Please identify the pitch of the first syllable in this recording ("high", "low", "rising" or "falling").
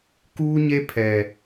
high